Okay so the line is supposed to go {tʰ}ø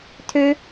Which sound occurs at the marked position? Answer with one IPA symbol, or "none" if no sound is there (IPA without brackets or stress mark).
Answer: tʰ